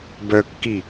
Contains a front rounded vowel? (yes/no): yes